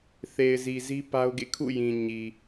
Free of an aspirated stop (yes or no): no